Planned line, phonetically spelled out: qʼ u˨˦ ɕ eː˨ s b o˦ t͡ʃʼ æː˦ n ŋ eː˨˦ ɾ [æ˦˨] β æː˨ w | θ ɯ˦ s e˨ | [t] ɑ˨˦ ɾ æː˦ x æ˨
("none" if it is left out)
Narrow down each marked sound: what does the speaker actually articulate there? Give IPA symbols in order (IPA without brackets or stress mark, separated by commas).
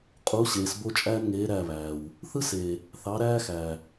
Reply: æ˦˨, θ